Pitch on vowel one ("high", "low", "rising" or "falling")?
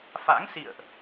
rising